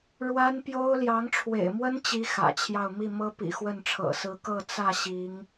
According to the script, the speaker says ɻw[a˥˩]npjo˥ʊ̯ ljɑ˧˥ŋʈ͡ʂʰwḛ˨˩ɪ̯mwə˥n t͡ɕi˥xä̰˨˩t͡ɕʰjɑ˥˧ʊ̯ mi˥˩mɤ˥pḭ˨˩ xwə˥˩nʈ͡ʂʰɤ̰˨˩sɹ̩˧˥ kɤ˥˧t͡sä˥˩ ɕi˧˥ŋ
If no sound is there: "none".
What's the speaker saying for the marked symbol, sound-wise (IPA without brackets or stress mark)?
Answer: a˥